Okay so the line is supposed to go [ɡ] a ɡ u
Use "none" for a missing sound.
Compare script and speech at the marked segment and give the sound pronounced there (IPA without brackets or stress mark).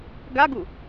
ɡ